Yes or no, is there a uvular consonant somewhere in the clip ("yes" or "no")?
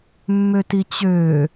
no